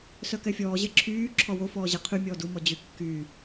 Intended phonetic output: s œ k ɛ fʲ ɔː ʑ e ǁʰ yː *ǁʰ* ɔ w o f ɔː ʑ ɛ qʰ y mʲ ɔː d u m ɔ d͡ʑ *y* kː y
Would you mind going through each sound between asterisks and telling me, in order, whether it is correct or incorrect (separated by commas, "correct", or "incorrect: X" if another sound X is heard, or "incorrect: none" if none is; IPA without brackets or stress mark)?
correct, correct